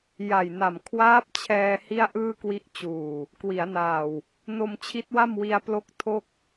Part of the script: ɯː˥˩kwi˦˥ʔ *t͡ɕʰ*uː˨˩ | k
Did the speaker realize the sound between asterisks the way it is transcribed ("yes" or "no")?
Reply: no